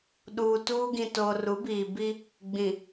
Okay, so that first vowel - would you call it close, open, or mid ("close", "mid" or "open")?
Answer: close